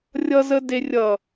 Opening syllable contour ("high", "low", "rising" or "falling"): low